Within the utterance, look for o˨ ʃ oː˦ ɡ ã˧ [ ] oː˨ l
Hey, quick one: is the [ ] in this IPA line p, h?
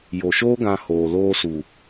h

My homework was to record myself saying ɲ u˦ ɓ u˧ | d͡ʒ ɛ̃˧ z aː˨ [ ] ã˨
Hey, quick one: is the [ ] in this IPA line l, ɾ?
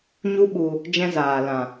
l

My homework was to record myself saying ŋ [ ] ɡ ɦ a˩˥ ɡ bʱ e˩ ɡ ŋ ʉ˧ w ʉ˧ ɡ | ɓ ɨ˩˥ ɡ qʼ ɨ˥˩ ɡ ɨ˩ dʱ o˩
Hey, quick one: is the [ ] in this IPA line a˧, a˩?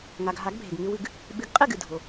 a˩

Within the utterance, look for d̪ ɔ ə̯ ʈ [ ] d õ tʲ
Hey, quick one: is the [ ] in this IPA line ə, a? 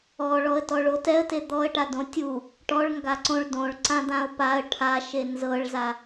a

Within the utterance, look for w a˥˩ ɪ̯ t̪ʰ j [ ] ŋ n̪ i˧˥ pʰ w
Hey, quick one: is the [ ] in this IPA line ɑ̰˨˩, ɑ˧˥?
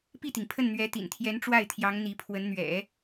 ɑ˧˥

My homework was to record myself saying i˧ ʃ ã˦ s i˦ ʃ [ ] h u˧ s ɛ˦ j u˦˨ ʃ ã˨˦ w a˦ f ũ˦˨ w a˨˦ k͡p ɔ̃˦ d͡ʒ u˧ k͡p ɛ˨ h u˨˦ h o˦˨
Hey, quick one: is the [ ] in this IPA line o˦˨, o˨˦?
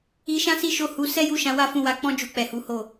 o˦˨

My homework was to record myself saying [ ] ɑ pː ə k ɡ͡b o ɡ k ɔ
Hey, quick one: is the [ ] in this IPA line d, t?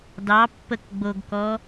d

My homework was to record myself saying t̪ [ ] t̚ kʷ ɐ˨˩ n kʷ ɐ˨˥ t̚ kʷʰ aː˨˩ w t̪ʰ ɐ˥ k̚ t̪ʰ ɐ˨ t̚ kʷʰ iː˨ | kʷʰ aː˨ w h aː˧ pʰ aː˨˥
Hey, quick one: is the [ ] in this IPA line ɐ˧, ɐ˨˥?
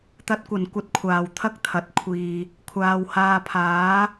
ɐ˨˥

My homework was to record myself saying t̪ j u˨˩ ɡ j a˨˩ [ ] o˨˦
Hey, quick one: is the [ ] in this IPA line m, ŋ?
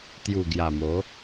m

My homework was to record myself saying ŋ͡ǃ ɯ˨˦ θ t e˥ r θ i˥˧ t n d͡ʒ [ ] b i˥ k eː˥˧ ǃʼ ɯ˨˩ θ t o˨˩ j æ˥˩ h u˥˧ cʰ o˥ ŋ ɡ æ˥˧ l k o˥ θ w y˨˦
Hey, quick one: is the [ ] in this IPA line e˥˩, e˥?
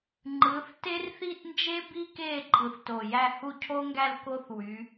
e˥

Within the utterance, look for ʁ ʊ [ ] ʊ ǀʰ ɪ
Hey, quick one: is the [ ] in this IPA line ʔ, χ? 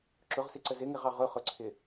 χ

